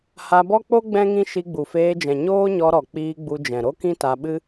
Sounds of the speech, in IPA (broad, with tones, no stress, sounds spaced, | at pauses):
h a˧ b ɔ˦ k͡p o˦ ɡ͡b ɛ̃˦ ŋ ĩ˦ ʃ i˧ ɡ͡b u˨ f eː˧ d͡ʒ ɛ̃˨ ɲ oː˦ ɲ ɔ˧ ɾ ɔ˨ k͡p iː˧ ɡ͡b u˧ d͡ʒ ɛ̃˨ ɾ o˦ k ĩ˦ t a˧ ɓ ɨ˦